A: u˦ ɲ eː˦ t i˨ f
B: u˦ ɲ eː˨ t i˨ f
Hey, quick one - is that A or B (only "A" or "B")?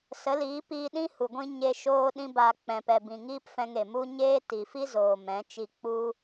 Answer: A